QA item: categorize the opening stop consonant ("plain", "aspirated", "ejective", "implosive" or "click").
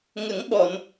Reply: implosive